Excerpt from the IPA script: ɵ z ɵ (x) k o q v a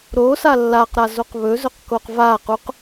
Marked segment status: incorrect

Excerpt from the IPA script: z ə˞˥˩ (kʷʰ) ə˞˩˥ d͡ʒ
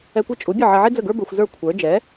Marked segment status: correct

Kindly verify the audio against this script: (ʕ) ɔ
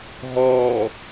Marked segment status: incorrect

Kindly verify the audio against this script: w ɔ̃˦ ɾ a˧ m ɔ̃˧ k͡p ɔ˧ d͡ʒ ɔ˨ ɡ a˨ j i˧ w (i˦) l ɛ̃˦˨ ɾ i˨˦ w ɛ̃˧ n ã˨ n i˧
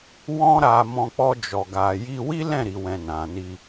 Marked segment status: correct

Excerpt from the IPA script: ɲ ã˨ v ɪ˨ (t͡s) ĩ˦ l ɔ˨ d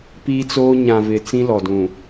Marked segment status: correct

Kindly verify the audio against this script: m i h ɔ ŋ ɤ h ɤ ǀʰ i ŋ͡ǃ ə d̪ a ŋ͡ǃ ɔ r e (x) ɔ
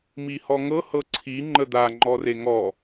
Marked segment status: incorrect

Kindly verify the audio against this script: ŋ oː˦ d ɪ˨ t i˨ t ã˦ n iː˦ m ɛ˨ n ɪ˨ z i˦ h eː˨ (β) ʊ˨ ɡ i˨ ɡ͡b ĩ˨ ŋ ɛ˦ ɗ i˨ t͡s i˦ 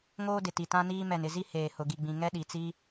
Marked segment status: incorrect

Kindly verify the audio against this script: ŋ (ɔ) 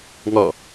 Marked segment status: correct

